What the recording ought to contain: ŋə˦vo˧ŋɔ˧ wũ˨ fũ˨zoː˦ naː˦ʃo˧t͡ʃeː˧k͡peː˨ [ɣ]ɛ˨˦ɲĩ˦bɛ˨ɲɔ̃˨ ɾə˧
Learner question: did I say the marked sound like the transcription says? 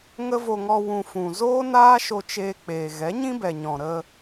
yes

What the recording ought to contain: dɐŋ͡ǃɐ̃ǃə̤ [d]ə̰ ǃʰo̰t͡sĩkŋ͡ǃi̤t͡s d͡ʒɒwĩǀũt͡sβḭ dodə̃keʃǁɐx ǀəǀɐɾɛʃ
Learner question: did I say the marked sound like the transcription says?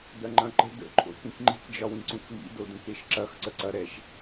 yes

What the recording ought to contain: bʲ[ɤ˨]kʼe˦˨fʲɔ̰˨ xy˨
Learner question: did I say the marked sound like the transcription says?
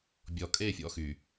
no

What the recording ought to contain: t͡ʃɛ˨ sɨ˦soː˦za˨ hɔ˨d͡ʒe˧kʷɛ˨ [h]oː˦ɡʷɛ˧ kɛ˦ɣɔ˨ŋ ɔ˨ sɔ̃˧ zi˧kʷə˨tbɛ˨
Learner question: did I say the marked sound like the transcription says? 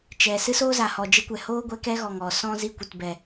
yes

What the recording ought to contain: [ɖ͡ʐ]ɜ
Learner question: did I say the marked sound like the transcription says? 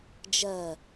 no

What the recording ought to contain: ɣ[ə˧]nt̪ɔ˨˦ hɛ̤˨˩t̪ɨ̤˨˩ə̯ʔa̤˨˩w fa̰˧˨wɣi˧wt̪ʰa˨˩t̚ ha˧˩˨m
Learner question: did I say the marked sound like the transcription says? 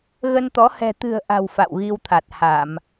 yes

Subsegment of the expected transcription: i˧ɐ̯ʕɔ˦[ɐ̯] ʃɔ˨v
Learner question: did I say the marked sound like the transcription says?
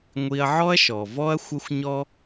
yes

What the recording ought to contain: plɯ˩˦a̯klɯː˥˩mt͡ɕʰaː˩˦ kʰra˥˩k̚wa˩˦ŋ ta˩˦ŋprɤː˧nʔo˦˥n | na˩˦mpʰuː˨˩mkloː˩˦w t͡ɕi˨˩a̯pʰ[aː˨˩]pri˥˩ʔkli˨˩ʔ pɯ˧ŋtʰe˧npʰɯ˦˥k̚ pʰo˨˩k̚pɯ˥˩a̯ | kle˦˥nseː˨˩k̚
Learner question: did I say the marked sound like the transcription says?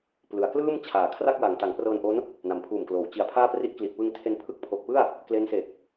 no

